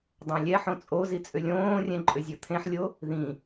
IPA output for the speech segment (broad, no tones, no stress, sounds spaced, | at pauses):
dˤ ɛ̃ lʲ ɛ ħ õ t͡sʼ o z i t͡sʼ ʏ lʲ õː rʲ ɛ̃ ǃʼ ʏ zʲ o t̪ʰ ẽ ħ lʲ o | ð ĩ